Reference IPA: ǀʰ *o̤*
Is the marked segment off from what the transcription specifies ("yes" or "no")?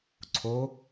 yes